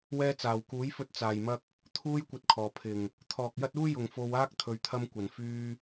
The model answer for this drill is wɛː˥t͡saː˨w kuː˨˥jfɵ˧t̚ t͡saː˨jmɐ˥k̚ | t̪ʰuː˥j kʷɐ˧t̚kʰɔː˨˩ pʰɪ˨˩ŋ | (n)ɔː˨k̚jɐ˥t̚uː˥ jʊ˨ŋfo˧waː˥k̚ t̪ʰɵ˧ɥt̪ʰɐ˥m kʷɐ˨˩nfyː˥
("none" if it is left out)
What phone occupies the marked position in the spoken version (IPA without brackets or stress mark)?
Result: t̪ʰ